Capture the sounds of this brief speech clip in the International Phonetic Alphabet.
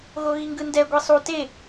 ɣ o ɣ i ŋ ɡ ɯ n d ɛ ɡʷ i sˤ u t e

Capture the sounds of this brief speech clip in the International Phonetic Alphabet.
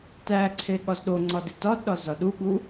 t æ ǀʰ e ɠ ɒ z ɗ o ŋ͡ǀ ɒ d i t ɒ d ɗ ɒ z ɒ ɗ u ɠ u

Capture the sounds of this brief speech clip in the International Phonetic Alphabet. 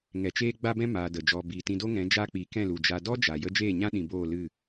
ŋ ɛ˨ t͡ʃ eː˦ ɡ͡b a˦ b ɛ̃˦ m aː˧ d ə˨ d͡ʒ ɔ˧ b iː˨ t ĩ˧ d o˦ ŋ ɛ̃˨˦ d͡ʒ a˦ k͡p i˨˦ k ɛ̃˦˨ l u˨ d͡ʒ a˨ d ɔ˦ d͡ʒ a˨ j ə˦ d͡ʒ eː˦˨ ɲ ã˦ ɗ ĩ˨ b oː˦˨ l ɨ˦˨

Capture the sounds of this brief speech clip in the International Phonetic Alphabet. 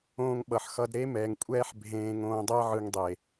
õː˧ ŋ ɓ ʌ˨ ħ x ʌ˧ d ɾ e˦ m ɛː˨ ŋ kʷʼ ɛː˦ ħ bʱ ẽː˧ ŋ õː˧ dˤ ɛ˦ ʕ ɯ˧ ŋ dˤ e˨

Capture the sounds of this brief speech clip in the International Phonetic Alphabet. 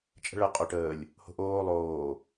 t͡ʃʼ ə̤ ɭ ə qʼ o ʈ əː lʲ | h o̤ ʔ oː lˠ oː

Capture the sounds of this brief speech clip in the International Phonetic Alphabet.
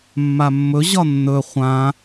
mː a mː ɵ ʑ ɒ nː ɵ χʷ ã

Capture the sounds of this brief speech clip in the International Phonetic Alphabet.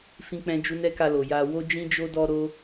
f ĩ˦ k͡p ɛ̃˦ d͡ʒ u˦ n ɛ˦ k a˧ l o˨ j a˧ w o˦ d͡ʒ ĩ˦ d͡ʒ o˦ d ɔ˦ ɾ o˦

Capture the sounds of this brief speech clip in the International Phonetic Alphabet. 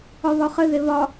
ɒ β ɒ χ ɘ ð e β ɒ

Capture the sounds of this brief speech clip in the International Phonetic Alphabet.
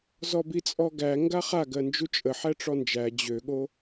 z ɔ b i t͡sʼ ɔ ɡ æ ŋ ɡ a χ a ɡ ɜ n d͡ʒ u t͡ʃʼ ə ħ æ ʈ͡ʂ ɔ n d͡ʒ æ d͡ʑ ø ɠ o

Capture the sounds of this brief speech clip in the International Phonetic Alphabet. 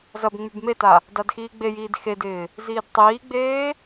z ɐ b ŋ͡m y b m e t a | d a d x iː ɡ͡b e j iː d x e d ɪː | z iː d tˤ iː ɡ͡b eː

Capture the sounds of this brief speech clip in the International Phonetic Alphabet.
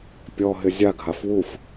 pʲ ɔ ɦ ɪ zʲ a ɡʱ a f w u f

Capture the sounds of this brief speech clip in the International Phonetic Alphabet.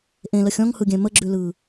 ʔ ẽ l ə xʲ ɔ̃ ŋ h ɯ ɡʲ ɛ̃ m ə ɡ͡ǁ ʉ l ɯ

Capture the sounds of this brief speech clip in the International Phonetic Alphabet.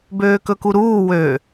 b øː k ɵ k u ɾ uː w ø

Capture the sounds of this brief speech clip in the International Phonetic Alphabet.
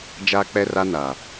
d͡ʒ aː˦ k͡p ɛ˦ r a˦ n a˨

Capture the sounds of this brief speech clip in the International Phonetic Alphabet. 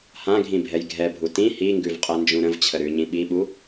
h ã ɡʱ ĩ bʱ ɛ j ɡʱ ɛ bʱ u t ĩ h i ŋ ɡ ʉ v qʼ ɛ n d͡ʒ ũ ɾ ə̃ v t͡ɕʰ ə ɾ ʉ ɲ ĩ ɓ i ɓ u

